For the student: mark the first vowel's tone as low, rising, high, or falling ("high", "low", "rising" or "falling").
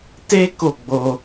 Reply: high